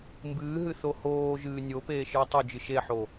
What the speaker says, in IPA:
mbɨːɦɨ θohoːʒɨː nʲopeː ʃɨːtˤɵd͡ʒɨ ʃeħo

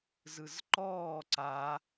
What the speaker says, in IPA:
zɯzǃɔː ǀa

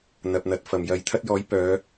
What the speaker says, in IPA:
n̪ɐ˨p̚n̪ɐ˨t̚fɐ˨˩mjɐ˨˧j t̪ʰɐ˥t̚jɔː˨˥j pœː˨˧

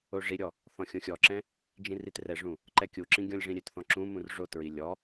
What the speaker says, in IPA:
oʐiɾʲɔ | θɔ̃xʲõxʲɔǁɛ̃ | d͡ʒĩritrɛʐũ | ǃɛkʲuǁĩ ɡʲɔ̃lʲʐĩɾʲøtθɔ̃ ǁũmũr ʐotɹi lʲɔ

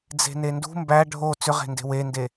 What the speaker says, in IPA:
d͡ze̤nendṳ mbæ ɖʱo t͡sʏʁe̤nde̤ wende

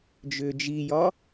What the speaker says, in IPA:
d͡ʒʏːd͡ʒijɒ

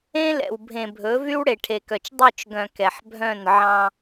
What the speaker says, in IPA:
ẽ˦lɛ̰˨w bʱẽ˨bʱɵ˨˦ vy˦wɽe˨ʈʰe˨kœ˨t͡ʃ dˤø˦˨t͡ʃɡœ̃˨ kɛ˨ħbʱœ̃˦˨n ʕɑ̃˦

